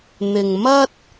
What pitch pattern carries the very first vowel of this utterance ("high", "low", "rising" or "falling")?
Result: low